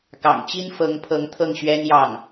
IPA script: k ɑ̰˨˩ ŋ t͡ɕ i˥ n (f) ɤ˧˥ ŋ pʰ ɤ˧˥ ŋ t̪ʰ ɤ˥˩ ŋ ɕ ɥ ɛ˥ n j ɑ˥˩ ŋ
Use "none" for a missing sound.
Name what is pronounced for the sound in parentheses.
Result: f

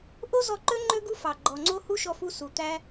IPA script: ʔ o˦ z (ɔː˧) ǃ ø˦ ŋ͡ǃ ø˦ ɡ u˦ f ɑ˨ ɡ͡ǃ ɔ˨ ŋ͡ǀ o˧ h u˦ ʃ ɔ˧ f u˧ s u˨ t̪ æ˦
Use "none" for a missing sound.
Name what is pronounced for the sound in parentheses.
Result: ɔ˧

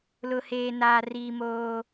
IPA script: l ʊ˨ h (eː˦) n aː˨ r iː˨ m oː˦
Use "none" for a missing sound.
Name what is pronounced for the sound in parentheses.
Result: eː˨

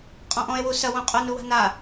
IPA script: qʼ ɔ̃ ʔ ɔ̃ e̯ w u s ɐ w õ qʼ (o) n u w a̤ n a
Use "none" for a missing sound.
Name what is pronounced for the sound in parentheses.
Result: o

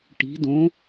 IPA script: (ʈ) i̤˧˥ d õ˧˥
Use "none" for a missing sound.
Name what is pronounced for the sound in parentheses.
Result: ʈ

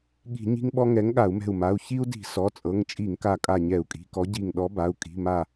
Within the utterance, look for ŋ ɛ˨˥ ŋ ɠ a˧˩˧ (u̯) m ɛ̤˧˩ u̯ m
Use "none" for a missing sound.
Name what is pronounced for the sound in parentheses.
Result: u̯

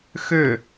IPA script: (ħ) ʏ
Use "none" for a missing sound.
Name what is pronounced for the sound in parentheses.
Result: x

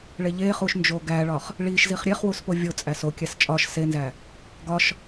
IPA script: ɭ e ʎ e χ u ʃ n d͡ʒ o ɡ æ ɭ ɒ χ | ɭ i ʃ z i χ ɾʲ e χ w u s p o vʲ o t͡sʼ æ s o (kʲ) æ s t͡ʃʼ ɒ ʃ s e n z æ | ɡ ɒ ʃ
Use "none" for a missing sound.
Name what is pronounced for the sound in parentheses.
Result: kʲ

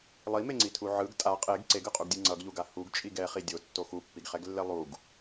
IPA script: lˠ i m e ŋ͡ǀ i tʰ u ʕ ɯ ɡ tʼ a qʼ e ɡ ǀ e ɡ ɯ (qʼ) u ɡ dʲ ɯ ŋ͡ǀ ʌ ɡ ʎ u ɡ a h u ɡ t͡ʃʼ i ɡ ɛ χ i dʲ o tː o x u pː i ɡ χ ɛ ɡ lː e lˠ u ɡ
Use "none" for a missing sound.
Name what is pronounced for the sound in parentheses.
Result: qʼ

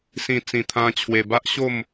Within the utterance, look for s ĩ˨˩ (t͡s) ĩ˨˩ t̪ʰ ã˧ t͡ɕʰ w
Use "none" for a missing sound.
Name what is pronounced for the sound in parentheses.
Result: t͡s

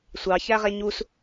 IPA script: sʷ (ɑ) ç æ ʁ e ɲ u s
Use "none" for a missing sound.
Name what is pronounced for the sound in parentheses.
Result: ɑ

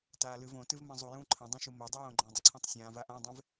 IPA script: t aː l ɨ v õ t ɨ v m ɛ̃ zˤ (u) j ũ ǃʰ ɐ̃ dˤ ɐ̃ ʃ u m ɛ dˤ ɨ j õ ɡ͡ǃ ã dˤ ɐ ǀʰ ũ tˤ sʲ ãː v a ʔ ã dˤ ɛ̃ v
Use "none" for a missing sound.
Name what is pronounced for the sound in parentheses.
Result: u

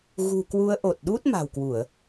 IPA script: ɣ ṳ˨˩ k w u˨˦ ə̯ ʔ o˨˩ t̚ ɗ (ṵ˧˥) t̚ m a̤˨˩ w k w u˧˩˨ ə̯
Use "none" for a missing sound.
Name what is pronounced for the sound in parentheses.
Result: u˦˥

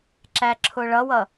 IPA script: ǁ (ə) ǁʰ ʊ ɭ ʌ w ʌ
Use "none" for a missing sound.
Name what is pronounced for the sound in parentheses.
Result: æ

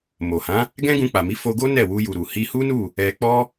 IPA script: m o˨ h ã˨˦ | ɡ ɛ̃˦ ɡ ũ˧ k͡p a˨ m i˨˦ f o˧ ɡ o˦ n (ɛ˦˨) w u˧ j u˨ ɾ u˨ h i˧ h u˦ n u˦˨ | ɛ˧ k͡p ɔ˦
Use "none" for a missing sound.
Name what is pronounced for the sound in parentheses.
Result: ɛ˦˨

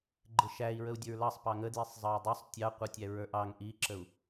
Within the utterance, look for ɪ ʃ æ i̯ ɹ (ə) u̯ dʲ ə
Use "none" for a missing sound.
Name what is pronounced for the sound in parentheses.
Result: ə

